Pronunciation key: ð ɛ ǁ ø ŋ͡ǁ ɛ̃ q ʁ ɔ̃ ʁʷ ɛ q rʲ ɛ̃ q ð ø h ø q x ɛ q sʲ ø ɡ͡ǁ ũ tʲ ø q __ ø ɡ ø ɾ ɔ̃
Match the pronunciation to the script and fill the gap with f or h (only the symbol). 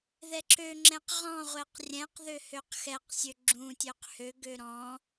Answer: h